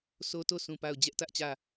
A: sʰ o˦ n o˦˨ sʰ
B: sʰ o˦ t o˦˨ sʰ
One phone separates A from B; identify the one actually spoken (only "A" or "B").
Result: B